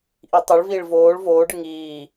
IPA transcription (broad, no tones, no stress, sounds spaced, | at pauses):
ʔ i tˤ u ɭ v iː ɭ v oː ɭ v oː ɖ ɯ ŋ iː